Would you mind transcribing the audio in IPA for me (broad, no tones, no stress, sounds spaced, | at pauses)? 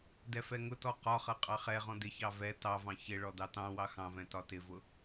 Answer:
d ɛ f ɛ ŋ ʊ t ɔ q ɒ χ ʌ qʼ ɑ χ ɛ ʁ ɔ̃ d ɪ ç ɑ v ɛ t ɑ v ɑ̃ ç ɪ ɭ ɔ d ɑ t ɑ̃ w ɑ x ɑ̃ v ɛ̃ t ɒ t ɪ v ʊ